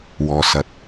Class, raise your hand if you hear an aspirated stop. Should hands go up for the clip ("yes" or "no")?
no